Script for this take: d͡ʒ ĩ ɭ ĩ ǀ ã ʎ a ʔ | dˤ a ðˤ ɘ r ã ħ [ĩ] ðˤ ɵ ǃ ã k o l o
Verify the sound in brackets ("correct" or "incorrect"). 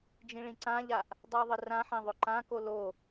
incorrect